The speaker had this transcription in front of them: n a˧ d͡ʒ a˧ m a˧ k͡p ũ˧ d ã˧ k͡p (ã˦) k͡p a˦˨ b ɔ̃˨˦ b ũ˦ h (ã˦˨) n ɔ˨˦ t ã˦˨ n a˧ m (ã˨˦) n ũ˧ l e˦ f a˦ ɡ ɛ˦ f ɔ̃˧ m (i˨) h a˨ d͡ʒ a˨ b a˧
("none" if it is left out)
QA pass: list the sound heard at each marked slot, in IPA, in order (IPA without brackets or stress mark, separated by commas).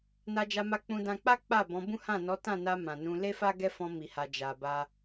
a˦, ã˦˨, ã˨, i˨